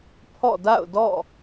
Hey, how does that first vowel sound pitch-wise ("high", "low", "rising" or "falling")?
falling